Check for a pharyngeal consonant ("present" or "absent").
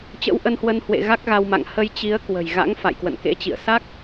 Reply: absent